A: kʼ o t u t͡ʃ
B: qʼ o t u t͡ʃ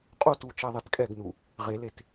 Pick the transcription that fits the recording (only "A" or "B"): B